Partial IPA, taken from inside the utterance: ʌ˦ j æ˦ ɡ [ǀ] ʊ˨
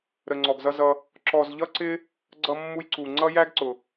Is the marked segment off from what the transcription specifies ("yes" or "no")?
no